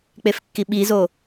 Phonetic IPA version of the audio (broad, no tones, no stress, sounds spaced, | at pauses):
k͡p e f kː i ɓ i z o